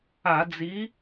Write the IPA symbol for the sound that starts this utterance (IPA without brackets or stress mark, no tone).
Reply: a